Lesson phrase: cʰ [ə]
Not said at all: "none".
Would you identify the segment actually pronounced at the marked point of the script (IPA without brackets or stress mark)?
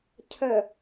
ə